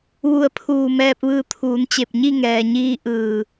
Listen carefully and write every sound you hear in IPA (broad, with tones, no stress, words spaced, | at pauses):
ʋu˧˩ə̯pʰuː˧˩ mɛː˧p̚ʋɯː˧ t̪ʰuː˩˧nt͡ɕe˧˩p̚ ɲi˥˨ŋɛː˩ɲiː˧ ʔɯː˧˩